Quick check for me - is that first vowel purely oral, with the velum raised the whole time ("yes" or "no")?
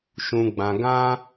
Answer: no